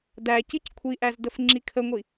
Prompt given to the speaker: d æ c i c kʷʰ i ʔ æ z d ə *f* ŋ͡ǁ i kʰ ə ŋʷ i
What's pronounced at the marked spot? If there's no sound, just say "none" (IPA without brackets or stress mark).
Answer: f